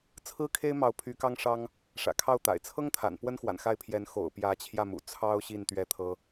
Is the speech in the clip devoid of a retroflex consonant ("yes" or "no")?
no